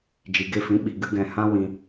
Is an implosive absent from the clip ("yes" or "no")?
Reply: no